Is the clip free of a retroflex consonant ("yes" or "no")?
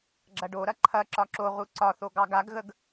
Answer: no